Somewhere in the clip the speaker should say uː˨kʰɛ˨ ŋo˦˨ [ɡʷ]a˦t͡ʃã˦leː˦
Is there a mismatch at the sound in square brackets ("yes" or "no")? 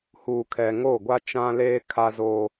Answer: no